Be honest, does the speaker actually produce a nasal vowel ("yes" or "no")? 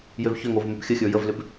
no